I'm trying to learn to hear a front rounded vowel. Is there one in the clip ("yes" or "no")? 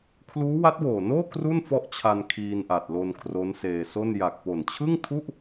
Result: no